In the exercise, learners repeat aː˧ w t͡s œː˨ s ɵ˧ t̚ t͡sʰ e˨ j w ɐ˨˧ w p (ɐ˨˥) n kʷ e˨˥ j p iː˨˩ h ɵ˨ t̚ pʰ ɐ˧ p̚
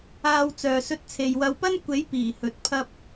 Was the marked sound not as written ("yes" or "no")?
yes